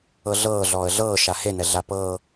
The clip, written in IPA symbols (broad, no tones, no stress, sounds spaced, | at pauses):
ɤ ɮ ɤː ɮ ɔː ə̯ ɮ ɤː ʃ a h e n ɛ ɮ a p ɤː